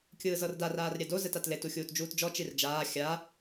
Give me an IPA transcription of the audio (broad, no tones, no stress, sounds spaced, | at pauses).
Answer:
kʲ ɯː z ɤ r d a r aː r ɾʲ ɛ d o z ɛ t a t l e t u xʲ uː t d͡ʒ uː t d͡ʒ ɔ t͡ʃ i r d͡ʒ aː xʲ a